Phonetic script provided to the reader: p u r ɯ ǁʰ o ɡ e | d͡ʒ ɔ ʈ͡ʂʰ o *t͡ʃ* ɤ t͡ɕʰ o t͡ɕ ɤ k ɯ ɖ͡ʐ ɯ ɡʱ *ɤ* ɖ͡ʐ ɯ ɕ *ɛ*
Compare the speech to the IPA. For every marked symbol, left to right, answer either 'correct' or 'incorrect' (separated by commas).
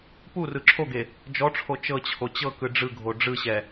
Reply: correct, incorrect, correct